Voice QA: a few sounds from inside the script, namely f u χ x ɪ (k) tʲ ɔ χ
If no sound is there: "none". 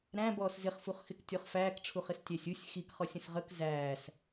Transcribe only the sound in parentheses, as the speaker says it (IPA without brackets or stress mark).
k